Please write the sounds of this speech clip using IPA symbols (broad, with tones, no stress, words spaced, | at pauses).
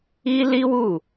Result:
i˦li˦wu˦˨